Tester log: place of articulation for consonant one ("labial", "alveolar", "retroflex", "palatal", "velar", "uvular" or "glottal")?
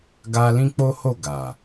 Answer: velar